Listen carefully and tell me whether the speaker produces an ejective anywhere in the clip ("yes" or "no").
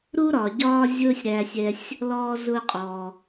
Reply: yes